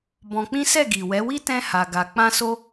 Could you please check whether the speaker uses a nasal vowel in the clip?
yes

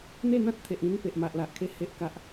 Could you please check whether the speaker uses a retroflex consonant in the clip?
no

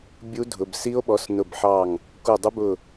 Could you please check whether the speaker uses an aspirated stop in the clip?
no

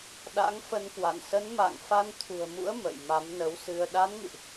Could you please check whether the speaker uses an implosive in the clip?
yes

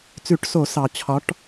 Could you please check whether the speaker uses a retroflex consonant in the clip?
yes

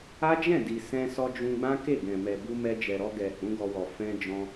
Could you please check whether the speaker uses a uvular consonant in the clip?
no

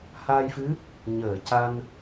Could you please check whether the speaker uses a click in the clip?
no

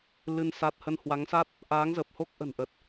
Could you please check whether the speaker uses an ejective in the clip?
no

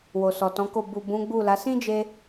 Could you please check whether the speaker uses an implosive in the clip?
no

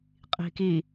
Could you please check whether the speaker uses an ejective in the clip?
yes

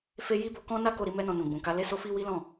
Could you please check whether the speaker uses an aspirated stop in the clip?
no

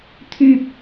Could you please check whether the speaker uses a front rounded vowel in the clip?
yes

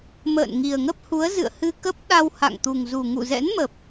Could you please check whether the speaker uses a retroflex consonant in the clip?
no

